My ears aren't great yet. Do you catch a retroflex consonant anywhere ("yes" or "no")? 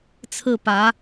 no